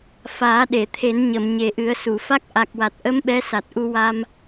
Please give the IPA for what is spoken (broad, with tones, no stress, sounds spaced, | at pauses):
f aː˨˩˦ ɗ e˨˩˨ t̪ʰ e˨˩˦ n ɲ ə˨˩˨ m ɲ e˨˩˦ ʔ ɨ˨˩˦ ə̯ s u˨˩˨ f a˦˥ k̚ ʔ a˨˩ k̚ w a˨˩ t̚ ʔ ə˧˥ m ɓ ɛ˧˥ s a˨˩ t̚ ʔ u˧ w a˧ m